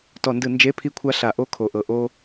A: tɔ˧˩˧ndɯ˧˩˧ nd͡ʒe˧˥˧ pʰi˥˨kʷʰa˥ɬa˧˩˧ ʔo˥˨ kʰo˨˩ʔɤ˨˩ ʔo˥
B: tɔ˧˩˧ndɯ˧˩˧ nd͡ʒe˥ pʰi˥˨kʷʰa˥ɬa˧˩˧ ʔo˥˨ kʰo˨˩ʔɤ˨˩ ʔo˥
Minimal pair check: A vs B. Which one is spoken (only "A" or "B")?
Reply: A